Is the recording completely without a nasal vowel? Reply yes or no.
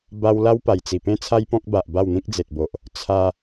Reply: no